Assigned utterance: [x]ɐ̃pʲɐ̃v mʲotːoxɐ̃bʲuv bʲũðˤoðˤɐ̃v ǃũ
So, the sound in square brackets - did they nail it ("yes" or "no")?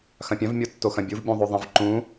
yes